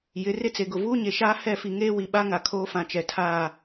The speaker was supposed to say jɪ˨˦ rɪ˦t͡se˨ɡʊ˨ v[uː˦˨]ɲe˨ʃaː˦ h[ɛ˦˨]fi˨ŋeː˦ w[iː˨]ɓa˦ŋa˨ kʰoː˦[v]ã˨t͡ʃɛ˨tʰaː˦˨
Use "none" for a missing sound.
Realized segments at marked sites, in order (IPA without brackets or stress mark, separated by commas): uː˦, ɛ˦˨, i˨, f